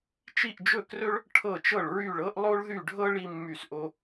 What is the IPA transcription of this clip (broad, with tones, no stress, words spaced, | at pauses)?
t͡ʃi˥˧ʔd͡ʒɵ˥˧krɵ˥ɭ | ʈʰɤ˥˧t͡ʃɤ˥˧ɭɹy˥˧ɭɤ˥ʔ lˠo˥ɭðy˥˧ɖʱɤ˥ ɭi˥mːy˥˧sʔo˥